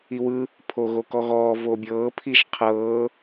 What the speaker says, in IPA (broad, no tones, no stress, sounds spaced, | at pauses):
i w ɯ | pʰ o ɣ o k ɔ ɣ ɔː v o bʲ ɤː pʰ i ʒ qʰ ɤː